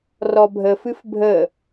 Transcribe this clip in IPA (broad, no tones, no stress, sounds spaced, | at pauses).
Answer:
r ɔ bʱ ə f ɨ f bʱ ə